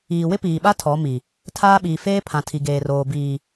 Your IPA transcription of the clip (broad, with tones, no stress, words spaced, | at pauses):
iː˨wɪ˦piː˨ɓa˦ tʰɔ˨˦mi˨ | tʰaː˦ɓiː˨ feː˦ pʰã˨tʰi˨ɡeː˨roː˨ biː˨